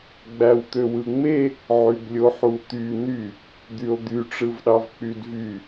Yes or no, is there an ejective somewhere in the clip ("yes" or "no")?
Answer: no